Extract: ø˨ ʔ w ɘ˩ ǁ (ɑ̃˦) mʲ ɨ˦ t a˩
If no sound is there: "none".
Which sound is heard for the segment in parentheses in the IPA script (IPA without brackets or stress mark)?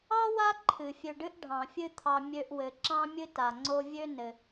ɑ̃˦